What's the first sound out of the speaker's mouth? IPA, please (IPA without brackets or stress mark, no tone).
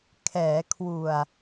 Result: kʰ